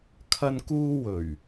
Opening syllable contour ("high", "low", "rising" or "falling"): high